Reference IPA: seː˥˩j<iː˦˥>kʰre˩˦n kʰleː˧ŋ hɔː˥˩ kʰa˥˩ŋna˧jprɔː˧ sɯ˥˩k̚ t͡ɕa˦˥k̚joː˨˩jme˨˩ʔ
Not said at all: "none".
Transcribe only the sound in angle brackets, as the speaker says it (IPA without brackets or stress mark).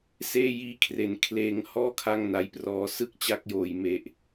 iː˦˥